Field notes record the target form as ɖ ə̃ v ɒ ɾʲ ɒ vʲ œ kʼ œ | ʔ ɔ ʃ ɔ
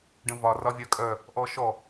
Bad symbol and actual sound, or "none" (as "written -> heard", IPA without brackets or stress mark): ɾʲ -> r